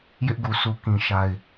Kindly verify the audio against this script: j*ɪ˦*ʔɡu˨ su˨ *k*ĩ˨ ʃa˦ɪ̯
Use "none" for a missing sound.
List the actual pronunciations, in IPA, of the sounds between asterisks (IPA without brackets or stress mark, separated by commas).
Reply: ɪ˦, k